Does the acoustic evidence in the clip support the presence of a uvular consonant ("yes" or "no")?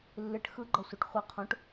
yes